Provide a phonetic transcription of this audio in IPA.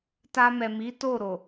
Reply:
t a˧ m ɛ˨ m i˨˦ t o˦˨ ɾ o˨

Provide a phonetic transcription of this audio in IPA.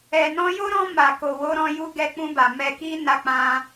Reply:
ɛ˨ n ɔ̃˧ j o˦ ɾ ɔ̃˧ m a˨ k o˨ w o˧ ɾ ɔ̃˧ j u˧ ɡ ɛ˧ k͡p ũ˧ b a˨ m ɛ˧ k i˦ n a˧ k͡p ã˧

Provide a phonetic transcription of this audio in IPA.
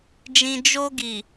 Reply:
d͡ʒ ĩ˧ d͡ʒ o˧ ɡ i˨

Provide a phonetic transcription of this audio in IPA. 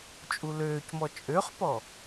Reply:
t͡ʃʼ u l øː c m ɔ t͡ʃʼ ø χ p ɔ

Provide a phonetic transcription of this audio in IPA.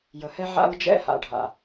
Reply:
j ə˨ h ɛ˦ ʕ a̰˦ ɹ d͡ʒ ɛ̰˦ h a̰˨ ɖʱ a̰˨

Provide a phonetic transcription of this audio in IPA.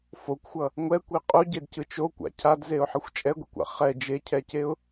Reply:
f o kʷ xʷ ʌ | ŋʷ ɛ kʷ i qʼ u ɟ e d c ɯ t͡ʃ o kʷ a̰ cʰ a d z e ʊ̯ ħ ʌ xʷ t͡ʃʼ ɛ ɡʷ ḭ kʷ a̰ χ ɛ d͡ʒ e cʰ ɛ c e ʊ̯

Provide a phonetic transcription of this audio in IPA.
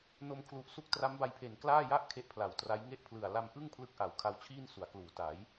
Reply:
n o˧ m kʰ l u˨˩ ʔ s u˦˥ k̚ t r a˦˥ m b a˧ j pʰ e˨˩ n k l aː˥˩ j a˥˩ ʔ kʰ e˦˥ ʔ pʰ l a˨˩ w t r a˦˥ j ŋ e˥˩ ʔ pʰ l ɯ˨˩ a̯ l a˧ m ʔ ɯ˥˩ ŋ pʰ l ɯ˦˥ k̚ ʔ a˩˦ w kʰ a˧ w t͡ɕʰ iː˥˩ n s u˩˦ a̯ k l uː˩˦ t a˩˦ j

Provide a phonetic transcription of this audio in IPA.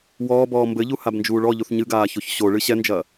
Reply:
w ɔː b ɔː m b ɘ ʎ u h a b n d͡ʒ uː ɭ ɔ ʎ u θ ɲ ɨ ɡ aː ç o ç ɕ o ɭ ɨ ɕ ɛ n d͡ʒ ɐː

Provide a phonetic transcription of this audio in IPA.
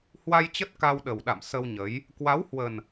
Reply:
h w a˧ j t͡ɕ ə˦˥ t̚ k a˧ w ɗ ə˨˩ w ɗ a̰˧˨ m s ə˧ w ɲ ə˨˦ j | k w a˨˦ w h w ə˨˩ n

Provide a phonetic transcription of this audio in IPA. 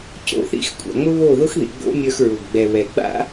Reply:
c o̰˦˨ θ ḭ˦ x kʷʼ a̰˨ ŋ͡m ʊ˦ β o˦˨ ð ʊ˦ x ð ḭ˨ ɡ͡b o̰˦ mʲ ə˞˧ x ɹ ʊ˨ ɡ ɡ͡b ɛ˨ β ɛ˨ ɡ͡b a̰˦

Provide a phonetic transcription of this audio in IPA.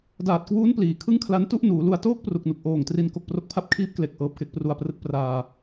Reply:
d aː˨˩ t̚ k w uː˦˥ n p l iː˩˦ kʰ ɯ˥˩ ŋ kʰ l a˦˥ n t u˥˩ ʔ n uː˩˦ l u˧ a̯ t oː˥˩ k̚ p r u˨˩ k̚ n u˨˩ k̚ ʔ oː˨˩ ŋ t r i˧ n k o˨˩ k̚ p r o˥˩ k̚ pʰ a˥˩ p̚ kʰ iː˦˥ p̚ k l e˨˩ k̚ ʔ ɤː˨˩ p̚ k e˦˥ k̚ p r u˧ a̯ p r ɯ˦˥ k̚ p r aː˧

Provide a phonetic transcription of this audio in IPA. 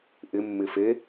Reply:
ʔ ɪ mː ɪ f e

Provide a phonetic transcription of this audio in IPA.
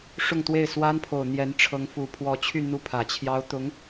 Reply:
ʂ ʊ˥˧ ŋ t̪ w e˥˩ ɪ̯ s w a˥ n pʰ o˨˩ ʊ̯ n̪ j ɛ˧˥ n ʈ͡ʂʰ ɤ˧˥ ŋ f u˨˩ pʰ w ɔ˧˥ t͡ɕʰ y˥˧ n̪ u˥˩ pʰ ä˨˩ t͡ɕʰ j ɑ˥ ʊ̯ t̪ ʊ˧˥ ŋ

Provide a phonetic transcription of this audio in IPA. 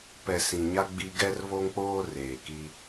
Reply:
p ɛ˨ s ĩ˨ ɲ a˦ ɡ͡b i˦ ɡ ɛ˦ r β o˦ ŋ k͡p oː˦ r eː˨ k i˦

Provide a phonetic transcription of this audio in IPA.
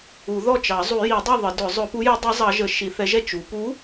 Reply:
u˨˩˦ ð ɔ˥˩ t͡ʃ ɑ˨˩˦ zˤ u˨˩˦ j i˨˩˦ dˤ i˥˩ ðˤ ə˨˩˦ d ʊ˨˩˦ zˤ ʊ˨˩˦ p u˨˥ j ʊ˨˥ dˤ ɛ˨˥ zˤ ɑ˨˥ ʒ ə˨˩˦ ʃ i˨˩˦ θ ɛ˨˥ ʒ ɛ˥˩ t͡ʃ u˨˩˦ p u˨˥

